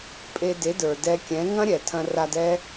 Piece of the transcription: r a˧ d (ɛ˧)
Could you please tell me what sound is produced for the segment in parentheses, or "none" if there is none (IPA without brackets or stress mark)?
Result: ɛ˦